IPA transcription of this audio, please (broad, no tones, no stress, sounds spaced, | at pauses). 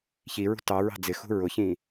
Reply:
ç i ɹ ṳ t ɑ ɹ ɑ̤ d͡z ɪ x ṳ ɹ ʊ ç ĩ